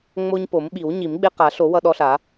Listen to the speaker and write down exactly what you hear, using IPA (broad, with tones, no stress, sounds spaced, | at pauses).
ŋ͡m o˦ ɲ p o˨˩˦ m ɓ i˨˩˦ w ɲ i˨˩˦ m ɡ͡b e˦ q a˨˩˦ ɬ o˨˩˦ w ʌ˦ ɗ ɔ˦ ɬ a˨˩˦